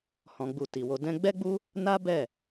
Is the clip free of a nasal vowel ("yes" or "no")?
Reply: no